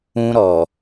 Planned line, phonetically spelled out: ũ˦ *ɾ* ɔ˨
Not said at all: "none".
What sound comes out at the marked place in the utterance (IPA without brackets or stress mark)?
ɾ